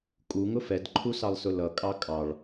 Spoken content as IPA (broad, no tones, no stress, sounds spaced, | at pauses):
kʼ u ŋ ʊ f ɛ d ǃʰ u s ɑ lˠ s ʊ l ʌ kʼ ɑ kʼ ɑ ɭ